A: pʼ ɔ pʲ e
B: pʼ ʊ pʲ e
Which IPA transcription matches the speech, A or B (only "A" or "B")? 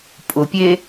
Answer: B